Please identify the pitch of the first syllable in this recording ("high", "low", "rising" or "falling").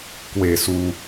falling